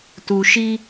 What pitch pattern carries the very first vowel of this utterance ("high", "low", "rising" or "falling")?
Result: low